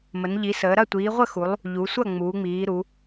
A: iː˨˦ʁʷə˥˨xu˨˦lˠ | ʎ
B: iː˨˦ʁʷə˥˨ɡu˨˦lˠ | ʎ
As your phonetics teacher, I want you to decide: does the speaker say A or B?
A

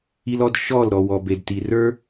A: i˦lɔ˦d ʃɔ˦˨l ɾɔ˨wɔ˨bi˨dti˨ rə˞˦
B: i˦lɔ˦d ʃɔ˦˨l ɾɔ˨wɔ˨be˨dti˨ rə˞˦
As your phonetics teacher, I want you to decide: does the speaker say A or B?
B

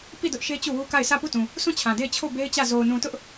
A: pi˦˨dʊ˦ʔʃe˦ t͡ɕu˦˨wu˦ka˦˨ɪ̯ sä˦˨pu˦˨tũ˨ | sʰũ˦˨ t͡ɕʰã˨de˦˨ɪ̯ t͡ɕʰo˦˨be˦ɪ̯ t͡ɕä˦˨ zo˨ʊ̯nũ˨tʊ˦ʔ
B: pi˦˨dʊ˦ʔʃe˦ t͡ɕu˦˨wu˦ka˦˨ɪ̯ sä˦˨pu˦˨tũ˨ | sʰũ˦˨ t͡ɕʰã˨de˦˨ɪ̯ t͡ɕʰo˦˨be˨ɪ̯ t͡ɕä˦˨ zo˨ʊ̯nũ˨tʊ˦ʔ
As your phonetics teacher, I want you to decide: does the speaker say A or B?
A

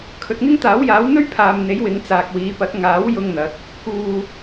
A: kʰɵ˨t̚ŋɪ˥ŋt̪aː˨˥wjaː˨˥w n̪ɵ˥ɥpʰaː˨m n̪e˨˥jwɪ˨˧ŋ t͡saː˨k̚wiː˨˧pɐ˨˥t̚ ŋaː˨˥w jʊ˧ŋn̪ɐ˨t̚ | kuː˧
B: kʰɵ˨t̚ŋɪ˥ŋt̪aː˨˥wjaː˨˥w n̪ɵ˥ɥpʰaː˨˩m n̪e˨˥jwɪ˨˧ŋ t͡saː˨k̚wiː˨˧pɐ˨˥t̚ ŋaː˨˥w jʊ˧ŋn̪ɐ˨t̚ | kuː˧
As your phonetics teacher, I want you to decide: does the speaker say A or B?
A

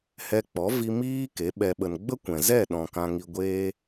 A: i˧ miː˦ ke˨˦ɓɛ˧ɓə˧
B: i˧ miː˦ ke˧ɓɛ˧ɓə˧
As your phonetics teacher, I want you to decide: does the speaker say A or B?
A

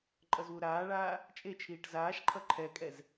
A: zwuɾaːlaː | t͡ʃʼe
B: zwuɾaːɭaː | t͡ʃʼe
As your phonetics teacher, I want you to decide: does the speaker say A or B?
B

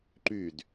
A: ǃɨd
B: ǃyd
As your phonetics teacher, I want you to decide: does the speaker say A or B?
B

